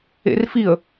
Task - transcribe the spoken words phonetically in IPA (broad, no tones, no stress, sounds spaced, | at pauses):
ḛ r f i ə̯